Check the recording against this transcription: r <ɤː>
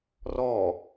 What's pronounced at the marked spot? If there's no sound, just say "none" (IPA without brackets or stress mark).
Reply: ɔː